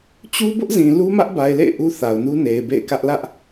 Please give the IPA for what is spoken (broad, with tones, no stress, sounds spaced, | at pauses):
t͡ɕ u˦ b ʊ˦ ʔ z ĩ˨ l u˦ m ä˦ ʔ b a˨ ɪ̯ l ḛ˦˨ ɪ̯ ʔ u˦ θ a˨ ʊ̯ n u˦ n e˨ ɪ̯ b ḛ˦˨ ɪ̯ k ä˦ ʔ l ä˦ ʔ